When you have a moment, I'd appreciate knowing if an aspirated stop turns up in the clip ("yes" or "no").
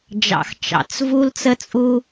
no